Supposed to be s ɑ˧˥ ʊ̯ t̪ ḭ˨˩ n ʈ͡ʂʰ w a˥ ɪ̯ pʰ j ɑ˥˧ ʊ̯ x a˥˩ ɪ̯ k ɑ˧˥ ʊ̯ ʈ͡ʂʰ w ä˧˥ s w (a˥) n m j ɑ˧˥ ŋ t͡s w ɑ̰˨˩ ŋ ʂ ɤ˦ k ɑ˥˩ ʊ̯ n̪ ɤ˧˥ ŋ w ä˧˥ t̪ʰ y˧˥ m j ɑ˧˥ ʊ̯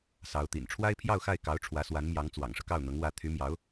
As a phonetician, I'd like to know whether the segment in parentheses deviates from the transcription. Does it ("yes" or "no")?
yes